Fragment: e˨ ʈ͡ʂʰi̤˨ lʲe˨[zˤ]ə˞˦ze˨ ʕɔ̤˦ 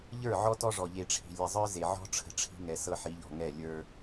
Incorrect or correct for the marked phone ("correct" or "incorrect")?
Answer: correct